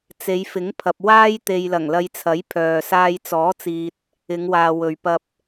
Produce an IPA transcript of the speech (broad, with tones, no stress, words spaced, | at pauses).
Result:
t͡se˨˧jfɪ˨˥ŋpʰɐ˨p̚ waː˥jt̪e˨j lɐ˨˩ŋlɐ˧jt͡sʰɐ˨˥j pʰœː˨ saː˧jt͡sɔː˨˥t͡siː˨t̚ | ɪ˨˧ŋwaː˨ wɵ˨ɥpɐ˧p̚